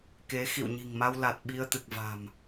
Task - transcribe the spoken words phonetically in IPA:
ke˨˦ xḭ˧˨wɲi̤˨˩ŋma˧w la˨˩t̚ ɓi˧ə̯t̪ɨ˨˩k̚va̤˨˩m

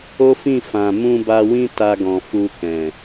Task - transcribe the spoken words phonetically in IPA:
o˦fĩ˦˨ fã˨ mũ˧ba˧wĩ˦ ta˧ɡɔ̃˨ fu˧ kɛ̃˨

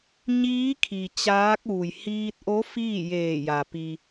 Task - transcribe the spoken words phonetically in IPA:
ɲiː˧˥ kʰi˩ t͡ɕaː˧˥k̚ ʋu˩jhiː˧t̚ʔo˧˥ fiː˥˨jeː˧˩ja˩ pi˩

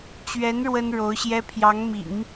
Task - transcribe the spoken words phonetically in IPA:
t͡ɕɥɛ˧˥n ɻwə˥nɻo˧˥ʊ̯ɕjɛ˥ pʰjɑ˧˥ŋmḭ˨˩˦ŋ

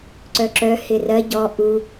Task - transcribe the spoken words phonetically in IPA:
ǀœǁœ hɪrɜ ɟɔ ʔu

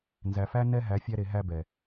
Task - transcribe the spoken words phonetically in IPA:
nzæ˨fæ˦ nɛ˦ɦæ˨˦ fʲæ˧ɾe˨ ɦæ˧bɛ˨

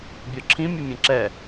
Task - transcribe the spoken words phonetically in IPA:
bʲɔǁʰĩ mʲɘmʲɛ̃ǁɛ

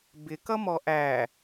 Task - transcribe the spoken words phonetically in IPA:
bɪkʌmɔ ʔæ

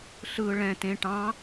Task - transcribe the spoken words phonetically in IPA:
ɬɯ ɭɛ̃ tẽ ʈɑ̃

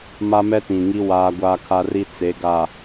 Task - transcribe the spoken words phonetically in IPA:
ma˦mɛ˦tĩ˨ŋi˦ waː˦ɡʷaː˦kʰa˦ri˦ t͡se˨˦ɡa˨

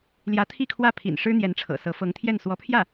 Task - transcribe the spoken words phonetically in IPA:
ljä˧˥t̪ʰi˥˧kʰwä˥˩ pʰḭ˨˩n ʂɻ̩˥n̪jɛ˧˥nʈ͡ʂʰɤ̰˨˩sɤ˧˥ fɤ˧˥ŋt̪ʰjɛ˥˩n swɔ˧˥pʰjä˥˩

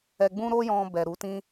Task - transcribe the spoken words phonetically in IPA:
ɛ˧ɡ͡bũ˦ ɾo˦jɔ̃˧ bɛ˨ɾu˨˦ tĩ˧

